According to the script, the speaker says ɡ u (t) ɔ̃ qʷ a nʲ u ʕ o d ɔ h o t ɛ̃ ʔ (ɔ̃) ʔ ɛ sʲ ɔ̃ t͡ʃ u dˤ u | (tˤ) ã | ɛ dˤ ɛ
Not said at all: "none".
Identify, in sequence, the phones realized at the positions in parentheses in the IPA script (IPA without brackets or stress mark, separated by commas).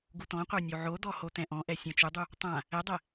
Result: t, ɔ̃, tˤ